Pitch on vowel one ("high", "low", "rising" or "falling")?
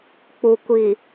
low